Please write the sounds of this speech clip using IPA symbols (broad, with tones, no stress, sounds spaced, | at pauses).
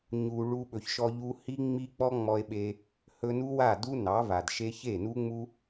ɲ u˨ ɭ u˧ ɓ ɵ˨ ç ʃ ɔ˧ ʎ u˧ h i˦ ŋ͡m i˦ k͡p ɔ˦ ŋ͡m ɔ˧ e̯ ɓ e˧ | h ɵ˧ n u˦ w a˦˨ d u˦ n ɑ˨˦ v a˨ d ʃ e˦ ç e˦˨ n u˦ ŋ͡m u˦